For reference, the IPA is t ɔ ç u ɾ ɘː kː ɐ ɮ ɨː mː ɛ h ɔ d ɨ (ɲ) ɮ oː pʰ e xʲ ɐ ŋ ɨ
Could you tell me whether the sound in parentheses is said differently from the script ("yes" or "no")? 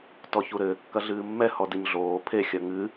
no